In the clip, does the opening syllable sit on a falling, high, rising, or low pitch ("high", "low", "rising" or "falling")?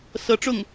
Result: rising